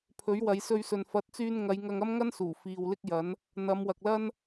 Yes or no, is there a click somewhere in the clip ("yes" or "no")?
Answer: no